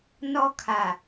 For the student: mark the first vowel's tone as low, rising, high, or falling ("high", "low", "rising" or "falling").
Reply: high